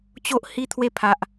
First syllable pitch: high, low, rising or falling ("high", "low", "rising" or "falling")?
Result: high